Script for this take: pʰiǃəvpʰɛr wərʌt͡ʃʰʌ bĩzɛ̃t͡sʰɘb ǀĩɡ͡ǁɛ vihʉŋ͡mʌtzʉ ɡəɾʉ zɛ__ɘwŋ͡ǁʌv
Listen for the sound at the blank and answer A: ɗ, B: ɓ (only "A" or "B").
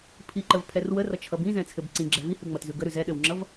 A